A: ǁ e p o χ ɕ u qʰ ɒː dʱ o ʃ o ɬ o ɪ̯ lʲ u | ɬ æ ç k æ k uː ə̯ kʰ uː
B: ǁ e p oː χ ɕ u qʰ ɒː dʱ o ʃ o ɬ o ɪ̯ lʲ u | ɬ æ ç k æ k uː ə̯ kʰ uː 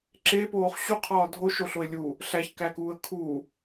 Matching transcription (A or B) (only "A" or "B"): B